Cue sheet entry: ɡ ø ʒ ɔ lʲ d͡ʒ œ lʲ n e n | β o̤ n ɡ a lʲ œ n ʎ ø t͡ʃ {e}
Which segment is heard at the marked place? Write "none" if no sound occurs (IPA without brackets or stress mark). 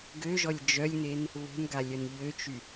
y